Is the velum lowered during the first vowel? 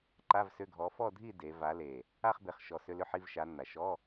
no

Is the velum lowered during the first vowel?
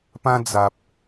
yes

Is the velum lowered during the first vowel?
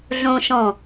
yes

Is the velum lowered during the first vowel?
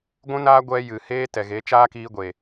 yes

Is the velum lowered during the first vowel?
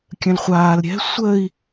yes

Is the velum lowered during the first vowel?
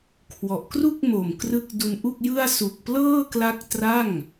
no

